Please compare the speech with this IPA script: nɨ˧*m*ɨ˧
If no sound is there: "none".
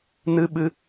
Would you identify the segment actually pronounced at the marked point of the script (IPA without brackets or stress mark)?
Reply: ɓ